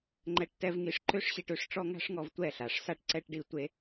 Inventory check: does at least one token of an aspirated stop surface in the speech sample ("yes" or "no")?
no